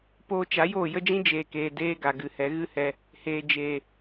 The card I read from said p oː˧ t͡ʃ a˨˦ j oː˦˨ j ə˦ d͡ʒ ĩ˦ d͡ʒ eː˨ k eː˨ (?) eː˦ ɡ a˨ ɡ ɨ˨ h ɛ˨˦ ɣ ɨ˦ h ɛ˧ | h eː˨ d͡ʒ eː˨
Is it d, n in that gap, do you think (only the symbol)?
d